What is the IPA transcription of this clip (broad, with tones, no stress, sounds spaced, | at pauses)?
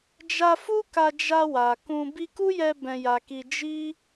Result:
d͡ʒ a˧ f u˦ k a˧ d͡ʒ a˧ w a˨ k ũ˧ b i˧ k u˦ j ɛ˧ b ɛ̃˧ j a˧ k i˧ d͡ʒ i˦